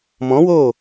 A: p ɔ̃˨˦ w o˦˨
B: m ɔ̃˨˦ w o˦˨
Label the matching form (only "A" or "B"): B